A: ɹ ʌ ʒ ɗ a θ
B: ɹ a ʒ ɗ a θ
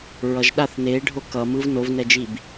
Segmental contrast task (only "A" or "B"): A